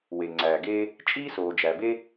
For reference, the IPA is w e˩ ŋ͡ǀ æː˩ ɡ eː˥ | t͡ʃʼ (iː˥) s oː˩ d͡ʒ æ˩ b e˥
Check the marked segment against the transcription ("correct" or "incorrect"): correct